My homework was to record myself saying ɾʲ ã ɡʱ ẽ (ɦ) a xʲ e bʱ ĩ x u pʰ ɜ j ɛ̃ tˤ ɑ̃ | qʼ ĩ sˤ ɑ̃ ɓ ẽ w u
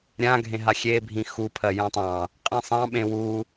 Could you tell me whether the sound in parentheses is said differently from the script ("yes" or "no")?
no